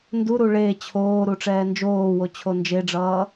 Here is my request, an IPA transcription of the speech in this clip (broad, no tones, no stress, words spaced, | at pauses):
nduɾu ɭe t͡ɕʰoːɾu ʈ͡ʂɛːnd͡ʒoːwo t͡ɕʰond͡ʒeɖ͡ʐʌː